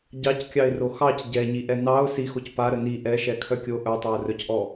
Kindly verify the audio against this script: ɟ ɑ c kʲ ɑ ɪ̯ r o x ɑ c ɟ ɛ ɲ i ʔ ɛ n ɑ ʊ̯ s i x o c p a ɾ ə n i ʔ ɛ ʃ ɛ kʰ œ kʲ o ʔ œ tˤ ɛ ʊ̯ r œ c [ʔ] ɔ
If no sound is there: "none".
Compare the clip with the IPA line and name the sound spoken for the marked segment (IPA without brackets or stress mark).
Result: ʔ